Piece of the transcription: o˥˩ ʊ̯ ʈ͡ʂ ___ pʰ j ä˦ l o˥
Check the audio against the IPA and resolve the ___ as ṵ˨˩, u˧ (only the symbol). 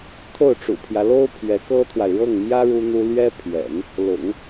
ṵ˨˩